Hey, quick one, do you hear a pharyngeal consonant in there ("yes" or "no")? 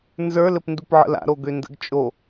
yes